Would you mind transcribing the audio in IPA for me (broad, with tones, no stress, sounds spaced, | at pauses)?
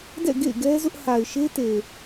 d ɛ̰˦˨ ɡ ḛ˦˨ ɪ̯ ɡ ɛ˦ z ʊ˦ ʔ h a˨ ɪ̯ ʃ e˦ t e˨